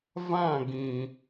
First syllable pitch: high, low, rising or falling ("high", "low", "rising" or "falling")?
falling